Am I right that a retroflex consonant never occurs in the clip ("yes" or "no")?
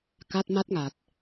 yes